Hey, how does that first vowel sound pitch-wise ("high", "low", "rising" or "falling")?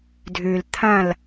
low